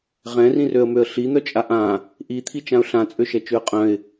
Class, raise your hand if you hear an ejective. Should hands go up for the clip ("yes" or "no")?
yes